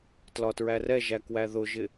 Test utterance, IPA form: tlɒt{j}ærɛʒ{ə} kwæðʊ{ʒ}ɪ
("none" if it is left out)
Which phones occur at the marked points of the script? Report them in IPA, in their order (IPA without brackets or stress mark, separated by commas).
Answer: ɹ, æ, ʒ